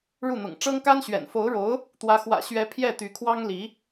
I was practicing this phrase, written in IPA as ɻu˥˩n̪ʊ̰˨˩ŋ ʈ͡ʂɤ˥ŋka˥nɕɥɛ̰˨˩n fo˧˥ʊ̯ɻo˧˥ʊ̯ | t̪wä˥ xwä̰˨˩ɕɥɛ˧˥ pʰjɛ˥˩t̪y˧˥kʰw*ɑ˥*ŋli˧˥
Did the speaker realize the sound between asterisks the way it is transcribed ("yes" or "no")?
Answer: yes